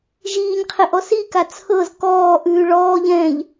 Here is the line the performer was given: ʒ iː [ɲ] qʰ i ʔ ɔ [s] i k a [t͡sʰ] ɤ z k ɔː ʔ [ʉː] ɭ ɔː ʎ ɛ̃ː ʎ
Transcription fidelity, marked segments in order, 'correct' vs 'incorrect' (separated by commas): correct, correct, correct, correct